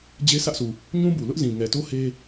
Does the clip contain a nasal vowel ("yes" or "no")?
yes